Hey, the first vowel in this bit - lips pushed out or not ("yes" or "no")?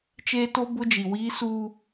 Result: no